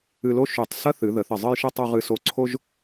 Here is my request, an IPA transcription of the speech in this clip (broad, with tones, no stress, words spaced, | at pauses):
ɨ˧lo˥ ʃy˧˩tˤ sɐ˥θɨ˩˧ ðə˩˧ θə˧˩zˤɨ˥˧jʃɨ˥ tˤu˧ʁɨ˧so˧˩ ǀʰo˥ʒ